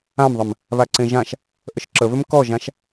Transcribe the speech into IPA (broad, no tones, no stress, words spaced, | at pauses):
ãmðˤəm | βaǀẽʒãʃ | ʔəʃǁəβʏm kɔʒãʃ